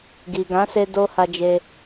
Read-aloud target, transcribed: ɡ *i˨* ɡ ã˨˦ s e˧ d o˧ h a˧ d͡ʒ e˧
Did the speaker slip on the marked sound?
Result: no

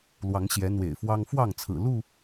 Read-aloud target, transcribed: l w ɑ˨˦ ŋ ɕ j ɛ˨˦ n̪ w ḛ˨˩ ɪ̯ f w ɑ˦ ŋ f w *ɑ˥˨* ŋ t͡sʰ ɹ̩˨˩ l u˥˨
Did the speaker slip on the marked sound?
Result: no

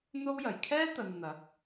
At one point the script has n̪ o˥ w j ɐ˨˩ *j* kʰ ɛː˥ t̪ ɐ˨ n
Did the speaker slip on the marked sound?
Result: no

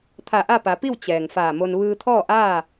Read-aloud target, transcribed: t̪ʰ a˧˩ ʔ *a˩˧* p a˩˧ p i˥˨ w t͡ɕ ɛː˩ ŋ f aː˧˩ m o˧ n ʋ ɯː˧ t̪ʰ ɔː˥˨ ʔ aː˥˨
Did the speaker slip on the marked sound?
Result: yes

